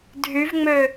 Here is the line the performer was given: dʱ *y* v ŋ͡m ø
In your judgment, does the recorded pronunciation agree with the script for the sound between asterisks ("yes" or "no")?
yes